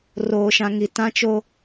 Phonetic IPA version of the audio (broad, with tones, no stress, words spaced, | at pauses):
roː˨ʃã˨ ŋi˨tã˦t͡ʃo˦